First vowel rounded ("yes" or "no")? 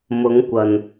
yes